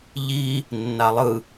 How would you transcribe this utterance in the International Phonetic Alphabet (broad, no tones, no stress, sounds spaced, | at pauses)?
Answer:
ʎ i | nː a lˠ ɯ